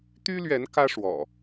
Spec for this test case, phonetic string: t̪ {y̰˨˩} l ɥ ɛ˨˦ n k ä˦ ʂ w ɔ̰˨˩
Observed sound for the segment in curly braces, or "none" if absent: y˦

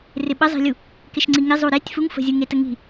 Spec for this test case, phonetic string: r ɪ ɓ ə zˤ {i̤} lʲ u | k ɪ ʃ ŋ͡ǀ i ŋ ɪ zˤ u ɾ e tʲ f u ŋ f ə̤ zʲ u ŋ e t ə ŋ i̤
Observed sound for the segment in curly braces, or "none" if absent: i̤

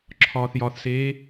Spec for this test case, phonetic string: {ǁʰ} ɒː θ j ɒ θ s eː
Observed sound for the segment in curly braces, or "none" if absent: ǁʰ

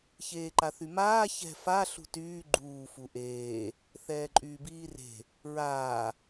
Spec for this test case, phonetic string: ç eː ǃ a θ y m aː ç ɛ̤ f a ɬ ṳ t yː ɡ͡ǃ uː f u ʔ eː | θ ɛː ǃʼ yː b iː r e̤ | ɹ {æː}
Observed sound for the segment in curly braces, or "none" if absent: aː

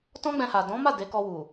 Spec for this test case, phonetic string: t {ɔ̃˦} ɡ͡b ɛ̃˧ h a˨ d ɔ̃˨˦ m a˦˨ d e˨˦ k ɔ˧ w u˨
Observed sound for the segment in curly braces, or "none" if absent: ɔ̃˦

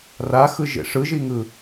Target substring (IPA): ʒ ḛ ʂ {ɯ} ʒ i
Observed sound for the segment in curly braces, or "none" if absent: ɯ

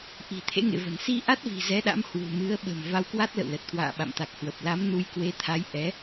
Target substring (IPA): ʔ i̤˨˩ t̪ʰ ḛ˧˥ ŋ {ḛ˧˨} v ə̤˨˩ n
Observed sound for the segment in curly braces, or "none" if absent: ḛ˧˨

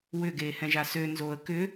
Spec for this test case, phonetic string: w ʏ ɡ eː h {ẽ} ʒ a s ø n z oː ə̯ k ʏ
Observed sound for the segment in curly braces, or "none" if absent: ɛ̃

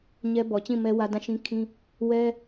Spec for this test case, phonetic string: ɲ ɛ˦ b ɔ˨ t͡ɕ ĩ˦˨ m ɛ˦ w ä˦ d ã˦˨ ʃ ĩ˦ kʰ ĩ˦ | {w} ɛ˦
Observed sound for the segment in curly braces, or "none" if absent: w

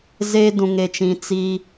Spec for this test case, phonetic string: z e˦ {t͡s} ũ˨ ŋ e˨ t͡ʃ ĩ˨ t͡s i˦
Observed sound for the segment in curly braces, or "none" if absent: d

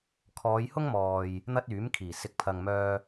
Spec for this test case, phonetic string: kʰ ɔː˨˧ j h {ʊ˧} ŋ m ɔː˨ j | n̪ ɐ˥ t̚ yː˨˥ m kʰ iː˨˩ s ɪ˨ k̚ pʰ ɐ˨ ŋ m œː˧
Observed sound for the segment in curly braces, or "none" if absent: ʊ˥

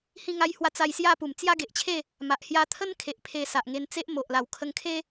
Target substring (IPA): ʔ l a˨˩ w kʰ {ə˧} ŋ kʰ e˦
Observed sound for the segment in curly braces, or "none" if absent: ə˧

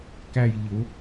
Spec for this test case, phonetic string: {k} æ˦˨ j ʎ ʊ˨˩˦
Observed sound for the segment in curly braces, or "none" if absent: k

